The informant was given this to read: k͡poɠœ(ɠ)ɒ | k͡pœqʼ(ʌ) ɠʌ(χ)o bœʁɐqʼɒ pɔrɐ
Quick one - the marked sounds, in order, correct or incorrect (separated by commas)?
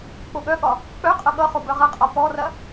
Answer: correct, correct, correct